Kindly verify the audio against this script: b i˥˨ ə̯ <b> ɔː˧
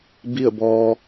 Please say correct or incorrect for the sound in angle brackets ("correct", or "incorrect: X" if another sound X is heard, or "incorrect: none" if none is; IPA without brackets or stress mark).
correct